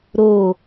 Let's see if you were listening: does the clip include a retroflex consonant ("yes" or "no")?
no